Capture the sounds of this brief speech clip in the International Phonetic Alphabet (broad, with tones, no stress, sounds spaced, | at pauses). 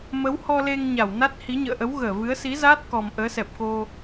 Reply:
m ə˨˦ w h ɔ˧ l e˧ ŋ ɲ a˧˩ w n a˦˥ t̚ h i˨˦ ɲ ə̰ː˧˨ ʔ ə˨˦ w ɣ əː˧˩ v ɨ˨˦ ə̯ s i˨˦ z aː˦˥ t̚ k ɔ˨˩ m ʔ əː˨˦ s ɛ˨˩ p̚ k o˧